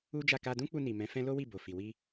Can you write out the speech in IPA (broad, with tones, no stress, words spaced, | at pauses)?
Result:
u˦d͡ʒa˦˨ ka˧dũ˦k͡pu˧ni˨ mɛ̃˨˦fɛ̃˦ lo˦wi˦˨bo˨fi˨ wi˧